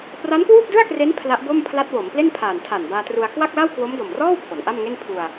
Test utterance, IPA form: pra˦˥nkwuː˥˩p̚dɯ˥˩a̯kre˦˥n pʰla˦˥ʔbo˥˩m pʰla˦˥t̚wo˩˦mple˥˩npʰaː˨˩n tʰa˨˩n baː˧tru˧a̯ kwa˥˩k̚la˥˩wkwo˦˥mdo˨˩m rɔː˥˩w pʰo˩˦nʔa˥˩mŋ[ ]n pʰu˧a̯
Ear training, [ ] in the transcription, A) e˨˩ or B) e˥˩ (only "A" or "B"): B